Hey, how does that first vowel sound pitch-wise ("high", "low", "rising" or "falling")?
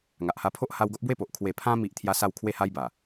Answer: low